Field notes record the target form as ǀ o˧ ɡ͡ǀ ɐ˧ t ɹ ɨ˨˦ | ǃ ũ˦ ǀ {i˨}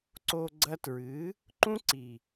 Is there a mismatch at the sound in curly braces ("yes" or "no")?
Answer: no